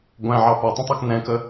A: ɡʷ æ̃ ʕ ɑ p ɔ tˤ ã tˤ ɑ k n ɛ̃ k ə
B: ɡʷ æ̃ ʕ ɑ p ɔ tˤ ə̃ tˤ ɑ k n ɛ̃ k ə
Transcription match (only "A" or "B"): B